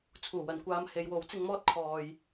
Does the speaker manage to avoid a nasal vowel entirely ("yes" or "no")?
yes